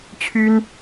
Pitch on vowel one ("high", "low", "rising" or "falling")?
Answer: high